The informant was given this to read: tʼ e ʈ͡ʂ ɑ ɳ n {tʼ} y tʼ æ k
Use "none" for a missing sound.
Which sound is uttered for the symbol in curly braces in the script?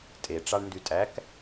d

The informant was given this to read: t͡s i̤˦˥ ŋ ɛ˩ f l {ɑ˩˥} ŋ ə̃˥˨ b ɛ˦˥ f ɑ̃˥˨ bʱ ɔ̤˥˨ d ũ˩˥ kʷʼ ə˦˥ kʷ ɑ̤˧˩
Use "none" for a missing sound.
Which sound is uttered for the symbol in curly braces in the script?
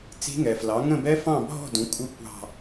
ɑ˩˥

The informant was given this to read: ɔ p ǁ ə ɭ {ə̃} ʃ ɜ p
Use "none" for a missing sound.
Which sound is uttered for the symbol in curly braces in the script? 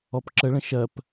ə̃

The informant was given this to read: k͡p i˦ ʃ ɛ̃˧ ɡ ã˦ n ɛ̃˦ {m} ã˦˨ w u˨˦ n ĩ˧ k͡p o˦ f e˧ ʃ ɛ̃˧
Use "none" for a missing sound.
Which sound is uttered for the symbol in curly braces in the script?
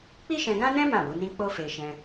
m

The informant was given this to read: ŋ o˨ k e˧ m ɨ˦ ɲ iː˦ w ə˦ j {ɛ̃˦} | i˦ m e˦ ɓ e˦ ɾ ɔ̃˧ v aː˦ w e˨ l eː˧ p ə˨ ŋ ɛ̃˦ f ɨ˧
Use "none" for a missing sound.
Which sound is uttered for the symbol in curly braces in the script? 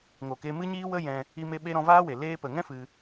ɛ̃˧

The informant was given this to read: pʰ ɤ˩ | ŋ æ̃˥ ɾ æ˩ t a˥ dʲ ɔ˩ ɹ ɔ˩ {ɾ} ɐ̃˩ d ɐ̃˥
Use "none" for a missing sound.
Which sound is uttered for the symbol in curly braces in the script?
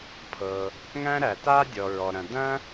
ɾ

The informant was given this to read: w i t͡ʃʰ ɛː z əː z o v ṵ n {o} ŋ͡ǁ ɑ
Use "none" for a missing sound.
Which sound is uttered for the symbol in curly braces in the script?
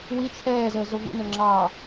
ɵ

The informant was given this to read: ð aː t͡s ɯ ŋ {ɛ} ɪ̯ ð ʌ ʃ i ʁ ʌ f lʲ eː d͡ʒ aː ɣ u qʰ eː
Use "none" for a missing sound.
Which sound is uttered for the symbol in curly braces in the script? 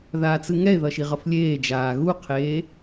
ɛ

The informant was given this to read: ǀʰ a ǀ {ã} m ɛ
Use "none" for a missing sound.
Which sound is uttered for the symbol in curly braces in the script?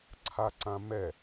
ã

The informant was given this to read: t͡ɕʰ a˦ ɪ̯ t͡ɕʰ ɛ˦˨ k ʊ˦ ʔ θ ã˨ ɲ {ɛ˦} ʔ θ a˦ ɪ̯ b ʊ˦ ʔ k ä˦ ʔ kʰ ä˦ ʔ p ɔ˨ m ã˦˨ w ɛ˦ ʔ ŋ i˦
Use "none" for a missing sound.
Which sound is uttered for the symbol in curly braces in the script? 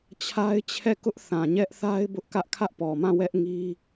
ɛ˦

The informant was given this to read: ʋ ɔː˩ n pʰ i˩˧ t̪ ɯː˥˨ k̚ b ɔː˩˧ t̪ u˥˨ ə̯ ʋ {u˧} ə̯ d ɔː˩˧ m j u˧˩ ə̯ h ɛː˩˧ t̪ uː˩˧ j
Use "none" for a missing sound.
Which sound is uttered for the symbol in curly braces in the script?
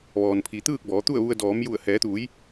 u˧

